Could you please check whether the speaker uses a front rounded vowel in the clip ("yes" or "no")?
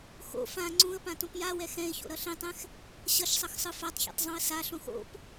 no